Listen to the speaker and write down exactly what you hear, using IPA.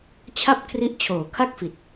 t͡ɕʰa˥˩p̚kʰri˦˥ʔ t͡ɕʰoː˨˩kʰa˥˩k̚fi˨˩t̚

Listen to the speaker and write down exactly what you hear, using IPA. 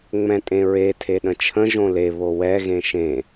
ŋ͡mɛ̃tʼẽɹe tʰeɗə̃t͡ʃʰə̃ ʒõle βowɛ ɣẽʃẽ

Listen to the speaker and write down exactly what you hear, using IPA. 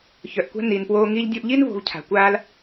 çœ˩ʔkʷa̤˥ ni˩npwoː˧ ŋi˧ʎdʲo˧ʔʎi˥n vo̤˧vcʰa̤˩kʷaː˥l

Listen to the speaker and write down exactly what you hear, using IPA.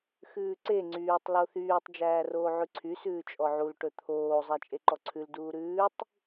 xʉːǀe ŋ͡ǀyːtˤ loθyːtˤ d͡ʒæːroːʕʉǀʰy sʉːt͡ʃʼɔʕul ʈɵt̪ʰoː zˤæt͡ʃʼeǃɔǀʰʉl duːɾʉːtˤ

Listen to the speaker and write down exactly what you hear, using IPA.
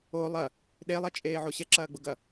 o lˠɐ | ɗelˠɐt͡ʃʼeː ʕoɕɛǁɐːɡ͡bʊ ɡɐ

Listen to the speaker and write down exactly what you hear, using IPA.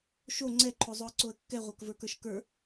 ʃo ŋ͡ǀɛǃʰozˤoə̯ǀoə̯ kːɛʁʷə˞kvə˞kə˞ʃ kə˞

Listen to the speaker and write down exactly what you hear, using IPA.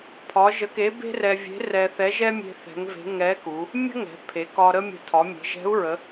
pʰɒ˧˥ ʒə˧˥ke˧˥ be̤˥rɛ˧vʲe̤˧˥ rɛ˧θɛ˧˥ʒɛ˥ mʲe̤˥θɛ̤˧˥ŋve̤˧˥ ŋɛ˧˥ku˩˧ | mʲə̤˥ŋɛ̤˩˧ pʰe˩˧kɒ˧ ɾə˥mʲə̤˧ tʰɒ˩˧mʲe̤˩˧ʒɛ̤˧˥u̯ɹə˩˧

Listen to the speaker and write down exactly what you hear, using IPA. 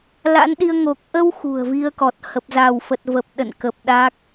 la̰˧˥nɗi˧ə̯ ŋo˨˩k̚ʔə˧w xṳ˨˩ə̯vi˧ə̯kɔ˨˩t̚ hə˨˩p̚za˧˩wfə˨˩t̚və˨˩p̚ ɗə̰˧˨nkə˨˩p̚ ɗa˦˥k̚

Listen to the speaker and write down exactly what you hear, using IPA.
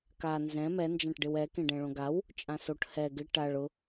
ka nzɛ̃ mɛ nd͡ʒãʈɖɪwɛ kẽɖɛ̃ɭõɡaw | t͡ʃʼãsoʈ hɛ ɡɪ ʈaɭ ʊ

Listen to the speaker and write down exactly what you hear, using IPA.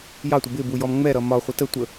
jɑtʷɪ bɪbujɔm ŋ͡mɛɾʌ mɒ χʷɪtə tʷə

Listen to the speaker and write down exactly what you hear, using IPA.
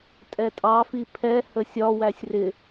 tʼɛtʼɑ fipʰɛ həsʲɒ wæsʲrɪ

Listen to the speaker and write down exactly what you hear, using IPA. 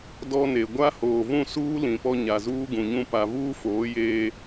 dɔ˦ne˨ ɡʷa˦ hoː˨vũ˦˨suː˦ lĩ˨pɔ˦ ɲa˨zuː˦ɡũ˨ɲũ˦ pa˨vuː˦foː˨˦ jeː˦

